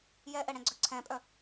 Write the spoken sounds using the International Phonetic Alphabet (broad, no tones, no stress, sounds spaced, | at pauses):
j ɛ ʔ ɛ ɽ ɛ̃ ɡ͡ǀ œ ǀʰ ɛ̃ pʼ œ